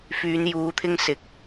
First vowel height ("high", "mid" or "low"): high